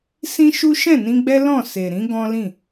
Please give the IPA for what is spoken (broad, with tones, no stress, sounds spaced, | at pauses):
s ĩ˦ ʃ u˦ ʃ ɛ̃˦˨ n ĩ˧ ɡ͡b ɛ˦ l ɔ̃˦˨ s e˨ ɾ ĩ˨˦ ɡ ɔ̃˦ l ĩ˦˨